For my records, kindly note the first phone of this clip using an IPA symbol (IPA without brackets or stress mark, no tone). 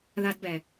ð